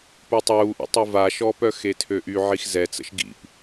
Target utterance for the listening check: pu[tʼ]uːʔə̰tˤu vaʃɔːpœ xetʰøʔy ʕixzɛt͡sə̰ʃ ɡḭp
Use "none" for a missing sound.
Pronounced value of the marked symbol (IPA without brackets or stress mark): tˤ